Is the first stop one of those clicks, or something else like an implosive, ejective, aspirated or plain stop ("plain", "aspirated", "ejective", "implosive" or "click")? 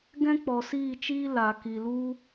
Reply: plain